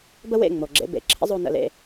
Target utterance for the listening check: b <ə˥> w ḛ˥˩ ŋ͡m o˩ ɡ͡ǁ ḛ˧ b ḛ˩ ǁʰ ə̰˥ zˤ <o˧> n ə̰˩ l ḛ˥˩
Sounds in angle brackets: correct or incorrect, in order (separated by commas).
correct, correct